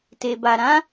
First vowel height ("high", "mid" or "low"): mid